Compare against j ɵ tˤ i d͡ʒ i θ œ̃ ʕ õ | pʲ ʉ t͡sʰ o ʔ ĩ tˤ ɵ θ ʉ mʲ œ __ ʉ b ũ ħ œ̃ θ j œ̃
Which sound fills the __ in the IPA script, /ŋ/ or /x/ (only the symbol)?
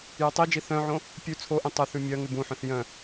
ŋ